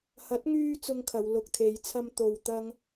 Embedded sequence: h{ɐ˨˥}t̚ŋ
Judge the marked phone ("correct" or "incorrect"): correct